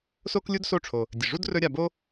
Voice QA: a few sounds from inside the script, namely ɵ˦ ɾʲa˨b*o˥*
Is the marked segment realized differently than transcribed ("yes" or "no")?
no